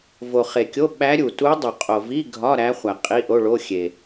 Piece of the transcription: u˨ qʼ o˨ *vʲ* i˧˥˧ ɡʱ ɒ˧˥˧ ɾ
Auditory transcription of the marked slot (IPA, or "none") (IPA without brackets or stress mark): v